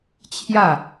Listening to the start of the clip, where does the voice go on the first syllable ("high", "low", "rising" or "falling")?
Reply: falling